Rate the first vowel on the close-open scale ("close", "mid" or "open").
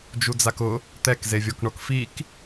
close